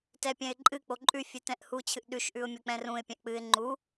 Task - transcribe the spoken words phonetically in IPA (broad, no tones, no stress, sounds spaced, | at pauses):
t ɛ pʲ ɛ̃ ɪ̯ ǃʼ ɨ k͡p o ǃʼ ʉ fʲ ɨ t ɛ̃ ʔ h u t͡ɕʰ ɨ ʔ ɗ ʉ ʃ ʔ ʉ ʊ̯ mʲ o k͡p ɛ̃ r ũ ɪ̯ pʲ ɛ̃ ʔ k͡p ɨ ɪ̯ ŋ͡ǃ u